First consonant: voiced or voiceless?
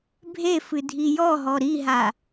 voiced